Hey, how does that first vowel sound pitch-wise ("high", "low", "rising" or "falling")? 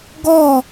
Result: falling